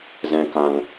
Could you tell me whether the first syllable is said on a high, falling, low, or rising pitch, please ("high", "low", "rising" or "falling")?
low